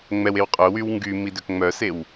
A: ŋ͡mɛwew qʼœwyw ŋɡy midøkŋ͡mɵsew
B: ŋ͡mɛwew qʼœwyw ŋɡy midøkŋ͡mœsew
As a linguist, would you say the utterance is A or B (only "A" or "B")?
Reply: B